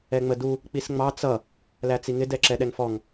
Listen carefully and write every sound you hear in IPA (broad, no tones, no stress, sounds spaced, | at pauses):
ɛ ŋ͡m ə d u | k͡p i s ŋ͡m ɑ t͡s ʌ | l æ t͡s i ŋ ɪ d ɛ ǁ ɛ ɗ ɛ ŋ f ɔ ŋ